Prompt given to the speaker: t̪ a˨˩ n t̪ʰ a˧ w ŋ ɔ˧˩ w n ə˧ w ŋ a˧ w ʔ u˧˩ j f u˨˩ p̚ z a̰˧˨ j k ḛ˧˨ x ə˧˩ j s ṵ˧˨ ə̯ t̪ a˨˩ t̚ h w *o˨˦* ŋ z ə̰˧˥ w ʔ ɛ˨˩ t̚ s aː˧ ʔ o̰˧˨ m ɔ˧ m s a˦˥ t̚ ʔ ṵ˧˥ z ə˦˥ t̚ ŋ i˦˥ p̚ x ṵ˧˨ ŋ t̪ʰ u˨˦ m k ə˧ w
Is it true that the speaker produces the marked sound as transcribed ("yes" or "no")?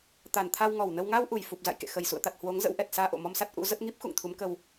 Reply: yes